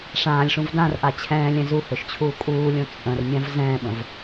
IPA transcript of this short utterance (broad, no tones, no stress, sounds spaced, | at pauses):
ʂ ãː lʲ ʂ ũ v d ã r ʔ a t͡ɕʰ ɛ̃ː lʲ ɛ̃ z u h ø ʃ t͡ɕʰ uː kʼ uː lʲ õ t͡sʼ ə̃ r mʲ ã v z ɛ̃ː ɓ ə̃ v